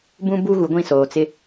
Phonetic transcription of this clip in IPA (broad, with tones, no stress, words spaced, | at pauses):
bũ˦bu˦ ɣu˨ɡʷĩ˦˨ soː˨t͡sɪ˦